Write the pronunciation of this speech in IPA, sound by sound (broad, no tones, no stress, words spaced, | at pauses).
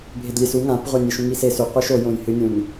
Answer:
bʱedlʲesu ŋãpʁʷa nʲeʃũŋise sʉ qʷeʃojõjhɨ nʲũn